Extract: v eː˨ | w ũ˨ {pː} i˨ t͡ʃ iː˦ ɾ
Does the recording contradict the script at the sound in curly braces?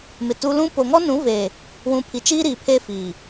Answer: yes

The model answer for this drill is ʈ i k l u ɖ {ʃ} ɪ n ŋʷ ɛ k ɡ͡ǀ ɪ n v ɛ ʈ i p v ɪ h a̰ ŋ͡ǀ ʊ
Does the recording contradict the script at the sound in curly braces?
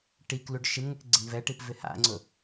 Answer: no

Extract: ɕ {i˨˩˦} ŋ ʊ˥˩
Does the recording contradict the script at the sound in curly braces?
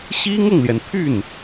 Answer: yes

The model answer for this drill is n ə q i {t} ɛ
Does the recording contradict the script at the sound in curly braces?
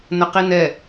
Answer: yes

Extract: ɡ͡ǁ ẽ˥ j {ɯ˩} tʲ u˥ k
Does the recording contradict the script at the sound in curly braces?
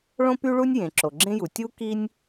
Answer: yes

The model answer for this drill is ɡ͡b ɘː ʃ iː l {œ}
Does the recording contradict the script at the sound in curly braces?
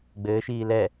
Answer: yes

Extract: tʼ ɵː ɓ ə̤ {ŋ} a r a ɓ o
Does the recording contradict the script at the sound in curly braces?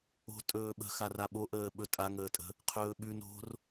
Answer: yes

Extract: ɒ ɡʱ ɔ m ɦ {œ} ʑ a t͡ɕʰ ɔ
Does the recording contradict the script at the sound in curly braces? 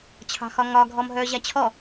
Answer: no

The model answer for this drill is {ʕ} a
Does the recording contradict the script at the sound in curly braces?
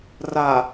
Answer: yes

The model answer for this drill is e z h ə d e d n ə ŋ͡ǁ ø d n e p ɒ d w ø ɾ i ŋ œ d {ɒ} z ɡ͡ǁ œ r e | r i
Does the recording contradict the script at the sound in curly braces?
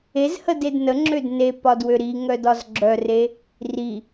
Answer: no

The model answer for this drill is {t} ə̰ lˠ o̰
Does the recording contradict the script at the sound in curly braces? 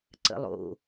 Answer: yes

